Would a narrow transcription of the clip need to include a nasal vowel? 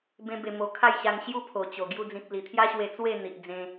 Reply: yes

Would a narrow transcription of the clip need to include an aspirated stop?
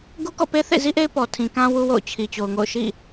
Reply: yes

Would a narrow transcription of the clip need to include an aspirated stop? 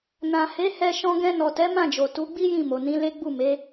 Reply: no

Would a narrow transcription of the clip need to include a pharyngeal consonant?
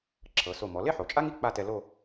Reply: yes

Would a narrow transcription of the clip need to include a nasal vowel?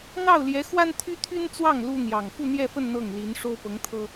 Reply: no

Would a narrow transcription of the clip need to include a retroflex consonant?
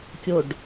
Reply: yes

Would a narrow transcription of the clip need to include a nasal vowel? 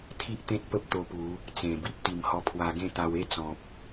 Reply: yes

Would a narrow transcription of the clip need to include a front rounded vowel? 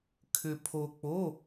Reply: yes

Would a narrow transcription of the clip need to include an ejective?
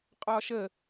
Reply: yes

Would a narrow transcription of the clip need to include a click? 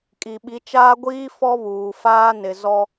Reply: no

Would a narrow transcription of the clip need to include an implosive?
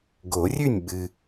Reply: yes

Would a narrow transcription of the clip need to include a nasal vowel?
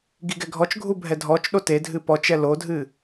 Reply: no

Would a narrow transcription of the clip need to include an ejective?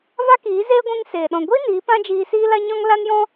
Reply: no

